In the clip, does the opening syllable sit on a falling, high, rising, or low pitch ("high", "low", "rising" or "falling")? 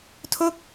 falling